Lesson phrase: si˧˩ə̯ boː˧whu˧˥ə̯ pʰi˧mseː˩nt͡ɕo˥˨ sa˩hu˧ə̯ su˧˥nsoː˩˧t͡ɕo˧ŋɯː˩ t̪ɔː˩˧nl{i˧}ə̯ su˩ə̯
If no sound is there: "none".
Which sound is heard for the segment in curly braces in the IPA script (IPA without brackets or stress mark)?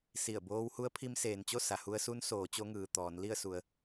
i˥˨